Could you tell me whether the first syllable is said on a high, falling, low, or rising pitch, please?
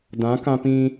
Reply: rising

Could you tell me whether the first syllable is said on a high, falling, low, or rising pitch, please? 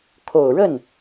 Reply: low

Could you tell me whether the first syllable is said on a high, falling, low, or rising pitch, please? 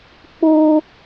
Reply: high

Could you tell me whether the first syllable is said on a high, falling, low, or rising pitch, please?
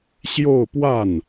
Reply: falling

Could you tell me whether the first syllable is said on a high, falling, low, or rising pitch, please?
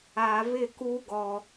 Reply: low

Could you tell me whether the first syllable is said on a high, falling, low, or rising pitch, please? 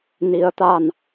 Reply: rising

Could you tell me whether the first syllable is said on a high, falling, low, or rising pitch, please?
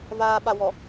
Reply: low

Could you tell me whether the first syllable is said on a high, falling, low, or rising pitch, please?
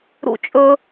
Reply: high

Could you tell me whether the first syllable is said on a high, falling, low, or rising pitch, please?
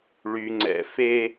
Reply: low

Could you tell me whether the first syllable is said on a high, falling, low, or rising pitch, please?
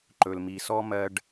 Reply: low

